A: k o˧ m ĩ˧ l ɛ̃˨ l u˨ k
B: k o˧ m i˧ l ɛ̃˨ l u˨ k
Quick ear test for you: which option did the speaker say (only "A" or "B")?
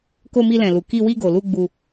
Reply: B